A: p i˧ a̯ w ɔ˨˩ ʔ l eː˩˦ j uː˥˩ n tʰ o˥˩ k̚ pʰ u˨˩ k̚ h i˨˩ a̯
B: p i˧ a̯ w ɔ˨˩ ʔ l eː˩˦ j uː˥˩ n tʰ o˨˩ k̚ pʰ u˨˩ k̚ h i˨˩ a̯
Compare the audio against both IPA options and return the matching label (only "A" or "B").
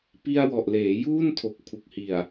B